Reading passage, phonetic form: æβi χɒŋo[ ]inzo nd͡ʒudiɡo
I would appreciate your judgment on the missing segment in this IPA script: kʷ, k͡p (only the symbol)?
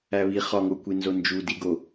kʷ